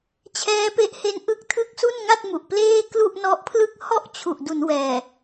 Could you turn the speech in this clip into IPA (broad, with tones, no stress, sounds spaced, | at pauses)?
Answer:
t͡ɕʰ ɛː˦˥ p e˦˥ ʔ h e˦˥ n ʔ ɯ˥˩ k̚ tʰ ɯ˥˩ k̚ s u˥˩ n ŋ a˥˩ t̚ m u˨˩ ʔ p l eː˥˩ k l u˥˩ ʔ n ɔ˦˥ ʔ pʰ l ɯ˥˩ k̚ h ɔ˥˩ ʔ t͡ɕʰ u˨˩ ʔ d u˩˦ n w ɛː˨˩